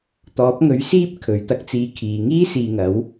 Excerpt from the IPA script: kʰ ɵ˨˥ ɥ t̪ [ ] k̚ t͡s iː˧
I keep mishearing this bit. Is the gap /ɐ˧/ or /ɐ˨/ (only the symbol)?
ɐ˧